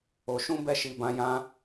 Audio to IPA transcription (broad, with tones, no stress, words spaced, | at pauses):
o˧ ʃũ˦bɛ˦˨ʃi˨˦bã˧ jã˧